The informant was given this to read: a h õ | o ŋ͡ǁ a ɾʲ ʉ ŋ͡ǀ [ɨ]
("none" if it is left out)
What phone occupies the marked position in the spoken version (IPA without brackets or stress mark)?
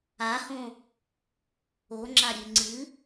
ɨ